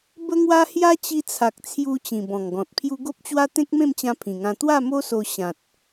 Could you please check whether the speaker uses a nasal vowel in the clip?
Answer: yes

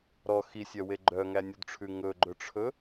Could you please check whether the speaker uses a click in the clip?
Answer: yes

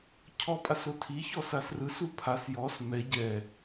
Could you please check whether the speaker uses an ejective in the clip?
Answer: yes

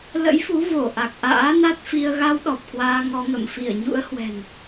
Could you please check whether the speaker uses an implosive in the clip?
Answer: yes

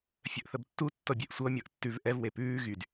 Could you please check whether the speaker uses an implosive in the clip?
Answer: no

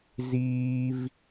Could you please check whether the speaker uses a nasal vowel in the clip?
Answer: no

